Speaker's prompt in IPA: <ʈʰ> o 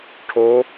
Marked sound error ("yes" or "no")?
no